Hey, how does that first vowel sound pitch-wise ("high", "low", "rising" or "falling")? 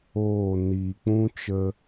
falling